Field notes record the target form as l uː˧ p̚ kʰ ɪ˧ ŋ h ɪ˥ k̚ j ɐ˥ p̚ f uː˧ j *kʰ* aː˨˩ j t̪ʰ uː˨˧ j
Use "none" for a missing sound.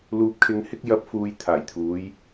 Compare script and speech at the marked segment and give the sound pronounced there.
t̪ʰ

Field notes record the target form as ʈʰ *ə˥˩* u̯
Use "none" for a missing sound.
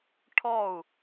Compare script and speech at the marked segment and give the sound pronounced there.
ɔ˥˩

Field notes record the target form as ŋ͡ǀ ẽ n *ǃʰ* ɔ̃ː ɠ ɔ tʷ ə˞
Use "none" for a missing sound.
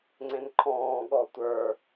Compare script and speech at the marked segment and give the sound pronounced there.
ǃʰ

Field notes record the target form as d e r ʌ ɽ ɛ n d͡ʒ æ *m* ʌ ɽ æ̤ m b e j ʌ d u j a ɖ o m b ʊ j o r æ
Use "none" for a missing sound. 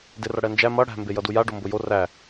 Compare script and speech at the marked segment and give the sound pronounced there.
m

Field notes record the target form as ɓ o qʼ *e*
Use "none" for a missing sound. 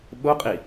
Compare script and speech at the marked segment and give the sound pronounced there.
i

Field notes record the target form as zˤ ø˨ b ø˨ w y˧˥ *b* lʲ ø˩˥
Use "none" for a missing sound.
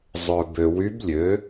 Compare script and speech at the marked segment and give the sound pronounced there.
b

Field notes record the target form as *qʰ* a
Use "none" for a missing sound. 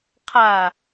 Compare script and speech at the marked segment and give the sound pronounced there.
qʰ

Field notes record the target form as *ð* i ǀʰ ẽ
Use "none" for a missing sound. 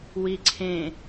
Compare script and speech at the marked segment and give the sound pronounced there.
w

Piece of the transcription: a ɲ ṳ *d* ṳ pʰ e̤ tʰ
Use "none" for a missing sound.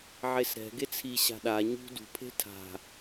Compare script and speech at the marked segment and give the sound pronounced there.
d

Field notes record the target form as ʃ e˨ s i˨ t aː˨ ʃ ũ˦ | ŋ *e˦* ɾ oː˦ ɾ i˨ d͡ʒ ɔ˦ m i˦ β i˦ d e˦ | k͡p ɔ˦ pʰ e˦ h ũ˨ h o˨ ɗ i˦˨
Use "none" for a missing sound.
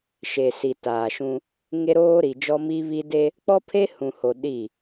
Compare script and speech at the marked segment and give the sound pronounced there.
e˦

